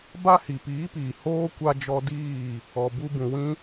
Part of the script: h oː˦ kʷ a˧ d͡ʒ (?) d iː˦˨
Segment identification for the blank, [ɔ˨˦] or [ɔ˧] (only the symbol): ɔ˧